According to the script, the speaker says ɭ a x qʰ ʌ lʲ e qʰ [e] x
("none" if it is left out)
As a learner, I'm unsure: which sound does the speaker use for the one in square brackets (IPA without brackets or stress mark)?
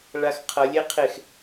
e